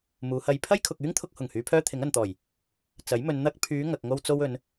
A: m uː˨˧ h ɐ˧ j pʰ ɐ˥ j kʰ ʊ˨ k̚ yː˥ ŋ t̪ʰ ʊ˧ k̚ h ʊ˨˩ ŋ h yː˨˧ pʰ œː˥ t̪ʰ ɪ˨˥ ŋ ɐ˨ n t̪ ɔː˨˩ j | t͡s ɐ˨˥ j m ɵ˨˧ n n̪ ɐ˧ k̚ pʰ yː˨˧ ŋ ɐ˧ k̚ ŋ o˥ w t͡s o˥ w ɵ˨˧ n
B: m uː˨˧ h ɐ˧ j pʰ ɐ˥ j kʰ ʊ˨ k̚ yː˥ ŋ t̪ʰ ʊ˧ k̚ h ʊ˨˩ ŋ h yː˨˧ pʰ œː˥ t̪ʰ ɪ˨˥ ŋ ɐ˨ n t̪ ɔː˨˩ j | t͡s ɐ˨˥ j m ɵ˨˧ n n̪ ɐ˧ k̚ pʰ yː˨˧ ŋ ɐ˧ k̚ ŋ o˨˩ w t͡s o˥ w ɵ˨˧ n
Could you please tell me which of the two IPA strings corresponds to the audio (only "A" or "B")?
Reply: A